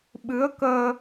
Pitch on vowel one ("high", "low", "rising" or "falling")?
rising